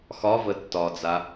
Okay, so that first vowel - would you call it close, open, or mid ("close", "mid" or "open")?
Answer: open